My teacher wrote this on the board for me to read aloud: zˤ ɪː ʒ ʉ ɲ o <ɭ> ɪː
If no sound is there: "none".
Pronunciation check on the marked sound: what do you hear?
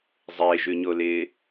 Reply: l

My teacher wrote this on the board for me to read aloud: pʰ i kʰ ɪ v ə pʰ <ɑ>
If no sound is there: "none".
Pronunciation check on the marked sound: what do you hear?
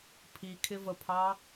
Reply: ɑ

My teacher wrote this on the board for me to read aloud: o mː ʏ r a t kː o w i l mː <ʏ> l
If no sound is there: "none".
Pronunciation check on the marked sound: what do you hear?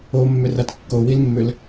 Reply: ʏ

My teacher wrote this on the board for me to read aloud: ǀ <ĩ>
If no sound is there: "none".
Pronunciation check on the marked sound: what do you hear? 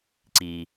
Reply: i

